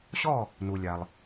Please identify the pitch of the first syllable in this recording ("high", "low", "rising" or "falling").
falling